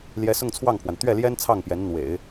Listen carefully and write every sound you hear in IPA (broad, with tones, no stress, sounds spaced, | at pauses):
l j ɛ˧˥ s ʊ˥˧ ŋ t͡sʰ w ɑ˥˩ ŋ pʰ w a˩ n t̪ ɥ ɛ˥˩ l j ɛ˥ n t͡sʰ ɑ˥˩ ŋ p j ɛ˧˥ n n̪ w ḛ˨˩˦ ɪ̯